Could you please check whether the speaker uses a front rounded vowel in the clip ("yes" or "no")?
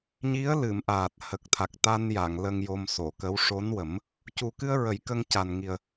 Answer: no